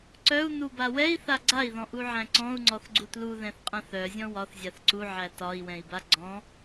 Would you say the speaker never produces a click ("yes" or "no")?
no